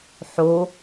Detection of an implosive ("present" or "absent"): absent